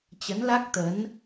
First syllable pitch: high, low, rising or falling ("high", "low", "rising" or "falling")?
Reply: rising